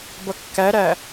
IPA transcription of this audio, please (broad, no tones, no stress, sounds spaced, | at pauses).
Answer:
b ʌ kː æ ɾ æ